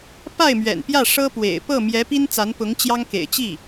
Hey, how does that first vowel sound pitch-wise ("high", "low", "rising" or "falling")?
falling